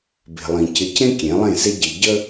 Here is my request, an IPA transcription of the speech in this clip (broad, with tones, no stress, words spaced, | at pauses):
be̤˨lˠĩ˨ cɪ˨cẽ˦ kʲẽ˨˦lˠẽ˦˨se˦ ɟi˨ ɟə˦